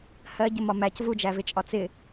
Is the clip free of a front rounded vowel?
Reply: yes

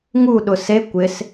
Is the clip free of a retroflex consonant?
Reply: yes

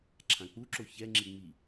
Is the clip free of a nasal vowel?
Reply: no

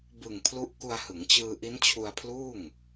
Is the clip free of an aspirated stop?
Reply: no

